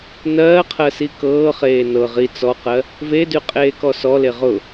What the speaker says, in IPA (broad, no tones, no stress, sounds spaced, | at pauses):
n ɜː qʰ ɜ s i k ɤː χ eː n ɤ ʁ i t͡s ɔ q ɜ | v e d y qʼ eː k ɔ s ɔ l e ʁ ʊ